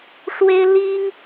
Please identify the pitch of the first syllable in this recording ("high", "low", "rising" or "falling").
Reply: high